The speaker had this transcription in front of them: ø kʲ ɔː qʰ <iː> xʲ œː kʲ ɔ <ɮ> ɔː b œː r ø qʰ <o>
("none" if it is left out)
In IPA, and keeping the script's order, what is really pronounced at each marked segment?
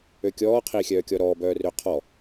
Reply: iː, ɾ, ɔ

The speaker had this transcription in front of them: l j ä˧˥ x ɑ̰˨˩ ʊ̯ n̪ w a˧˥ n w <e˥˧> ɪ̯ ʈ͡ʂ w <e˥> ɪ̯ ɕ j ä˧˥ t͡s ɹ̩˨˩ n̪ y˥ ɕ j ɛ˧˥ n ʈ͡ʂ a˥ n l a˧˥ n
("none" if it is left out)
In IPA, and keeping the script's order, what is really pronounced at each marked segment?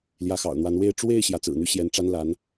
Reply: e˥˧, e˥˩

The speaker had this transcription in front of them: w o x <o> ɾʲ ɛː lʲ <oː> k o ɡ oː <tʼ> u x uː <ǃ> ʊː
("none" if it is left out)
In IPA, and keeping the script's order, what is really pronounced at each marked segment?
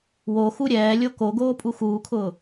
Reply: u, o, pʼ, kʰ

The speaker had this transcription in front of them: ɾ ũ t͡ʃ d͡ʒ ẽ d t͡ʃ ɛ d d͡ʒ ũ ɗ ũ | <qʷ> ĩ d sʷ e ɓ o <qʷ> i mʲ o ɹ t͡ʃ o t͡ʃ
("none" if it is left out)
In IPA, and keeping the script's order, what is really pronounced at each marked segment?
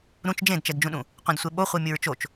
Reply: qʷ, χʷ

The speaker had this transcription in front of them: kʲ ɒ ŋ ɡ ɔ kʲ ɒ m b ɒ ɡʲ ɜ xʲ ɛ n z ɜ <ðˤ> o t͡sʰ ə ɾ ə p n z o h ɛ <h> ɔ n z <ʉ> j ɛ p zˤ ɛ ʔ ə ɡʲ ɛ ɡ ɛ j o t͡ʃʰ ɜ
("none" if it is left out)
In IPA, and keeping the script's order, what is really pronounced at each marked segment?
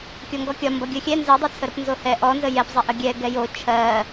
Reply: dˤ, ʔ, ə

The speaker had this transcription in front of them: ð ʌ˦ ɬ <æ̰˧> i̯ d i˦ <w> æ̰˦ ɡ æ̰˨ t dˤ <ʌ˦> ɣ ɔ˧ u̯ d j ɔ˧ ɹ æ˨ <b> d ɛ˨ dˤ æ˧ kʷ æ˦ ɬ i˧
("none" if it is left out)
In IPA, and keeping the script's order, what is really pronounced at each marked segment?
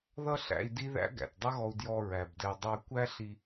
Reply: æ̰˧, ð, ʌ˦, b

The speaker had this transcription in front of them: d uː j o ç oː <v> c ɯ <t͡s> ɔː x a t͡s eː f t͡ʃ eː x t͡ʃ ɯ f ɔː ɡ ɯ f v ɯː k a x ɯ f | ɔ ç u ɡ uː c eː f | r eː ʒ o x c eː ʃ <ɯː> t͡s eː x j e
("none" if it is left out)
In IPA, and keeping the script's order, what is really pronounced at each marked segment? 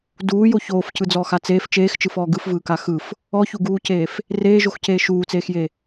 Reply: f, d͡z, uː

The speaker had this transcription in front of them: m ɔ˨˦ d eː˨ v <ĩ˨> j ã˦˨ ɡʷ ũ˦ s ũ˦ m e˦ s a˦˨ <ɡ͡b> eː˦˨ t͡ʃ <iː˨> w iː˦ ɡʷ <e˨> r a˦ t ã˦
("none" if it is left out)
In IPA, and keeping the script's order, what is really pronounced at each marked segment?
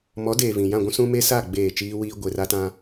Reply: ĩ˨, ɡ͡b, iː˦, e˨

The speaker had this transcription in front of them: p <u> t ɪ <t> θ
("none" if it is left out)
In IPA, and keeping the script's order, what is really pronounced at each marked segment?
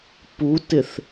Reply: u, none

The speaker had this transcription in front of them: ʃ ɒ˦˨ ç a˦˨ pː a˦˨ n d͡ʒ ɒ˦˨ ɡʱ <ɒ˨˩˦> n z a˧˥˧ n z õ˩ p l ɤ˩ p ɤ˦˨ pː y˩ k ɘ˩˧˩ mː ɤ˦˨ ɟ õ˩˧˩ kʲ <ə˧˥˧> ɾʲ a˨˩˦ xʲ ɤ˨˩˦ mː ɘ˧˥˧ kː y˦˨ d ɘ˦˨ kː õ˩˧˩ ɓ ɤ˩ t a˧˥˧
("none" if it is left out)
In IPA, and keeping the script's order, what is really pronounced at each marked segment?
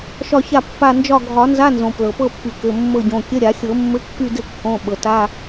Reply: ɒ˨˩˦, ə˧˥˧

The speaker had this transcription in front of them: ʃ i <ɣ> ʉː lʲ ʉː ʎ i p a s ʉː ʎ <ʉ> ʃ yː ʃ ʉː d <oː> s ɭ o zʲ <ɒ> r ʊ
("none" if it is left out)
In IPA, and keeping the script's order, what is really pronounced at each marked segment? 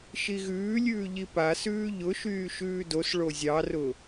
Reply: ɣ, ʊ, o, ɑ

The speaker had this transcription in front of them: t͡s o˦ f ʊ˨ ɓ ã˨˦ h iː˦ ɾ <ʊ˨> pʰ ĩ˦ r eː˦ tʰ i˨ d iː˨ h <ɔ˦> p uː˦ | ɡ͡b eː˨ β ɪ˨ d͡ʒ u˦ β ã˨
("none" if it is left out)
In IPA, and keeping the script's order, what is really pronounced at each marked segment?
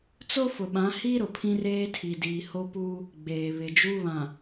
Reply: ʊ˨, o˦

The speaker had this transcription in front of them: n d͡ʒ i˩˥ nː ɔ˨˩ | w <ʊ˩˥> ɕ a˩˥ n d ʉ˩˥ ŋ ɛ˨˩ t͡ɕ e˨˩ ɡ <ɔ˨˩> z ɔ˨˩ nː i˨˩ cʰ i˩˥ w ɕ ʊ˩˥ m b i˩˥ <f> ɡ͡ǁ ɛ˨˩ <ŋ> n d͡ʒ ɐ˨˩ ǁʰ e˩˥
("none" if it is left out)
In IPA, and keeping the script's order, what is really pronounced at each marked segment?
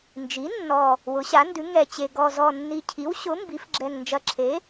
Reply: ʊ˩˥, ɔ˨˩, f, ŋ

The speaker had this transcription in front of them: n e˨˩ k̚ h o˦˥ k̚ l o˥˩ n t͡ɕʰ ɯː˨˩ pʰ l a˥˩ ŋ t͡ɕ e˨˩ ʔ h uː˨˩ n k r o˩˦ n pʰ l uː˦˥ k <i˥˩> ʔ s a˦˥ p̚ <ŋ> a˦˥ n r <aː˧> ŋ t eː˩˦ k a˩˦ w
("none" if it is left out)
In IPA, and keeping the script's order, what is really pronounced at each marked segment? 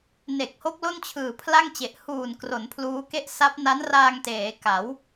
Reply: e˥˩, n, aː˧

